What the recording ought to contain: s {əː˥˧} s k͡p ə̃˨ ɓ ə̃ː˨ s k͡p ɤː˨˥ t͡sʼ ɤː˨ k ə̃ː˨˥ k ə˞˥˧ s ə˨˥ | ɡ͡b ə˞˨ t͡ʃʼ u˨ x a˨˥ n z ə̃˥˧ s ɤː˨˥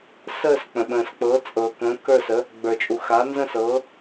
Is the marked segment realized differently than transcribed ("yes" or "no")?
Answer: no